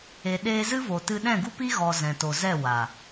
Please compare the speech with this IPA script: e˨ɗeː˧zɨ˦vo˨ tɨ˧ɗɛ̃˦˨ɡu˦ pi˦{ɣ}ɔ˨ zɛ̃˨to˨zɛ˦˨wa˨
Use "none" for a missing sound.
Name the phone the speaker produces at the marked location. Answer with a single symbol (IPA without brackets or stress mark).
ɣ